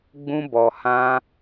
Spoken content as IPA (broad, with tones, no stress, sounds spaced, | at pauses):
ɡ͡b ũ˧ b ɔ˨ h ã˧